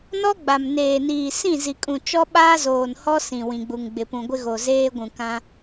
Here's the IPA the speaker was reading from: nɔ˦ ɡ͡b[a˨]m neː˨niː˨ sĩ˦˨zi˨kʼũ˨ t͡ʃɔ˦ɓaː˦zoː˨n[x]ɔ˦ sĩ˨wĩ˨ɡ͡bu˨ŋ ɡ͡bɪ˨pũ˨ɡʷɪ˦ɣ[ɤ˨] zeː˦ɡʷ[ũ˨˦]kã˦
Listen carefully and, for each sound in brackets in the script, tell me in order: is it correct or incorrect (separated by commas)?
correct, incorrect, incorrect, incorrect